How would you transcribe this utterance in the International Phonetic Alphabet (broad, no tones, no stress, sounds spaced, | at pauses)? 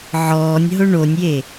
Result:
ʕ ɔː nʲ ɦ ʊ ɳ o nʲ j e